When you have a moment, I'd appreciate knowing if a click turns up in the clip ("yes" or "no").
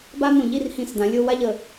no